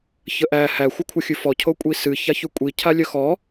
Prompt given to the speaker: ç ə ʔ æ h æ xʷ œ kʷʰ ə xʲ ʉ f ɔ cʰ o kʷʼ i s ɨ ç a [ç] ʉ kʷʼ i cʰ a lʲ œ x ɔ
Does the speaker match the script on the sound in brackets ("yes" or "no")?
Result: yes